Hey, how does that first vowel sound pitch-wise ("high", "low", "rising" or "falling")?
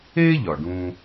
high